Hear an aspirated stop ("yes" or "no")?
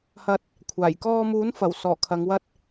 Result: yes